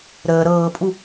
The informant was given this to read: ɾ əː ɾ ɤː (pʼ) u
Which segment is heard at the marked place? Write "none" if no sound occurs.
pʼ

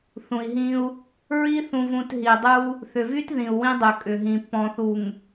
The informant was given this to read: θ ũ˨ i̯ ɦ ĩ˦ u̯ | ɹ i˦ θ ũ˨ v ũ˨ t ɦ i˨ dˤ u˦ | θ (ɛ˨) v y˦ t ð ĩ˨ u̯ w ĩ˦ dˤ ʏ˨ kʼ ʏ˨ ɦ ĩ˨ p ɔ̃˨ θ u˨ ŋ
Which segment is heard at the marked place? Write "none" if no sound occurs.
ʏ˨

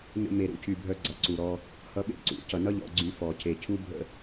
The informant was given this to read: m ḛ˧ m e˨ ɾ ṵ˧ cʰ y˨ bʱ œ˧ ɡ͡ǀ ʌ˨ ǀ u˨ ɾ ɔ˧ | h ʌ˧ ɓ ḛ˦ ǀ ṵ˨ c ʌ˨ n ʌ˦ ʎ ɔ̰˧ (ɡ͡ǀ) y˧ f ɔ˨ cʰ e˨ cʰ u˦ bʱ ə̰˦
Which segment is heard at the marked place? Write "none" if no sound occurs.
ɡ͡ǀ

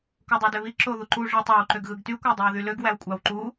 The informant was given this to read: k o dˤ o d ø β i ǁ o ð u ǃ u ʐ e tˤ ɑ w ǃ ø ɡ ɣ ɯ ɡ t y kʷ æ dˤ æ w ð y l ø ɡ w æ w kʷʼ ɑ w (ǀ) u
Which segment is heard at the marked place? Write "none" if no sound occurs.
ǃ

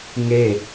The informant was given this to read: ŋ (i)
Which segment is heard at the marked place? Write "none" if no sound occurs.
e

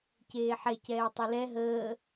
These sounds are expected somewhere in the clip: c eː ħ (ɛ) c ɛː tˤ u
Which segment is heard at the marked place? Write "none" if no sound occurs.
ɛ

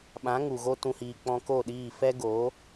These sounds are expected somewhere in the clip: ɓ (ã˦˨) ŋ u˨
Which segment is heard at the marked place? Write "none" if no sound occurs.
ã˨˦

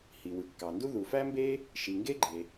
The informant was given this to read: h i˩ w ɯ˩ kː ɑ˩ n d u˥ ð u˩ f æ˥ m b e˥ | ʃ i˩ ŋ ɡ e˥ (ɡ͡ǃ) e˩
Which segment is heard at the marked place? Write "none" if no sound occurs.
ɡ͡ǃ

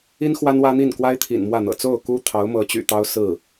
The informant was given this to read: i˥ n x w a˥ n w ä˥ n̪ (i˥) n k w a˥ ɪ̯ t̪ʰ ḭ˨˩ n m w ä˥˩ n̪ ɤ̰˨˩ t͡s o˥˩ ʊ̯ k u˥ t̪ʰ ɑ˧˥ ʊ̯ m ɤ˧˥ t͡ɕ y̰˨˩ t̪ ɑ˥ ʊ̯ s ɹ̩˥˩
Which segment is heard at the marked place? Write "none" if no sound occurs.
i˥˩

